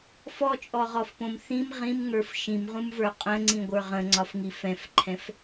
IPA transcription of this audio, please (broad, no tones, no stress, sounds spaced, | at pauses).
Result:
f ɔ t͡ʃʼ ɔ ʁ ɔ f p õ m θ ĩ m ʁ ĩ m ŋ ə˞ f ʃ ĩ m ʁ ũ m v ə˞ qʼ ə̃ ŋ͡ǀ ĩ ɡʷ ə˞ ʁ ə̃ ŋ͡ǀ ɒ f ŋ i f ɛ̃ f ǃʰ ɛ̃ f